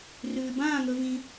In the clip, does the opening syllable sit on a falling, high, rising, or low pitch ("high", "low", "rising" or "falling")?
low